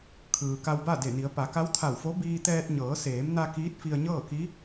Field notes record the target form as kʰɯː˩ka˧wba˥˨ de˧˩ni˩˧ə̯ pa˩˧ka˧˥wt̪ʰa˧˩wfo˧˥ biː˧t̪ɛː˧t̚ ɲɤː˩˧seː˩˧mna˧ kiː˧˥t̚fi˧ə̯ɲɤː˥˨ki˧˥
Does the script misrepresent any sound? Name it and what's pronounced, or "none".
none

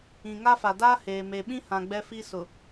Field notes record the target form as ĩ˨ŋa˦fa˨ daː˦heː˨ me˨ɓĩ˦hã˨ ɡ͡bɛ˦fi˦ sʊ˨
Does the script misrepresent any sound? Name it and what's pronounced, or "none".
none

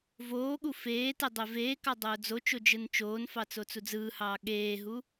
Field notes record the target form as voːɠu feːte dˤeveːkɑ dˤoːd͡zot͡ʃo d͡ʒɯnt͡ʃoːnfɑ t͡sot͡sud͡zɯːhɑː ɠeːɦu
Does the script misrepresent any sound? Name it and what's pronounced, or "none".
none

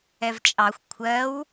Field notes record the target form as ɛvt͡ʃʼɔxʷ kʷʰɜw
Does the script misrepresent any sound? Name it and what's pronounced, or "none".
ɔ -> ɑ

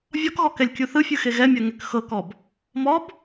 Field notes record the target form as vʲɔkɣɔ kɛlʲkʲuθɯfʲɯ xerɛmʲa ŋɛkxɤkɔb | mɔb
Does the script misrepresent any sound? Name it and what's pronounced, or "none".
r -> ɣ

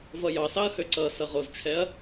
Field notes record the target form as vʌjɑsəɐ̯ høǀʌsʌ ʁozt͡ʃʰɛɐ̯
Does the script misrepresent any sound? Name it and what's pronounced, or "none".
ə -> ɑ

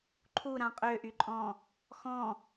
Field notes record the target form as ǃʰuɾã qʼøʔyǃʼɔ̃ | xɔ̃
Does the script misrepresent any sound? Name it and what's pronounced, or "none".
none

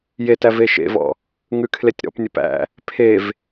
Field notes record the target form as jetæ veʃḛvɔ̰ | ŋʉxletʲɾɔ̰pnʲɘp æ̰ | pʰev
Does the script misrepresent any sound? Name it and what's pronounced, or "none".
x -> kʰ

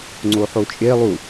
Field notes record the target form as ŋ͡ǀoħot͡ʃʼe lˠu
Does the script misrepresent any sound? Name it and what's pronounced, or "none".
none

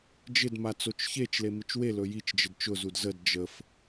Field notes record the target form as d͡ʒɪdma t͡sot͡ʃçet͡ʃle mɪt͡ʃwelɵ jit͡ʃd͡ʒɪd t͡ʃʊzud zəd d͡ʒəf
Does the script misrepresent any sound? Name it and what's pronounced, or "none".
none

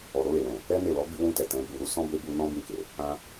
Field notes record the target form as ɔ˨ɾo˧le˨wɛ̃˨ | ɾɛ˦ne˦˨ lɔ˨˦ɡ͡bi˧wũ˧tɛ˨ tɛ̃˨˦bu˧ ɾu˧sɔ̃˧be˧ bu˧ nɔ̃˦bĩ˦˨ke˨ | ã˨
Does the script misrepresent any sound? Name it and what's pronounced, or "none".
ã˨ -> ã˧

